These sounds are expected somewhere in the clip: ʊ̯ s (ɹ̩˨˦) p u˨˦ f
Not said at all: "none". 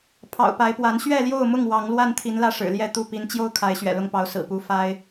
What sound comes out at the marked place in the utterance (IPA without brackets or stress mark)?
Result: ɹ̩˨˩